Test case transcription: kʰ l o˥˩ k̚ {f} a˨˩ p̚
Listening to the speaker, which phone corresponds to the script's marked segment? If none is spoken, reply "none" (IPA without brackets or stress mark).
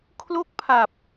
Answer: pʰ